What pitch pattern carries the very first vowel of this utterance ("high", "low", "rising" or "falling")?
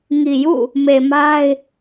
low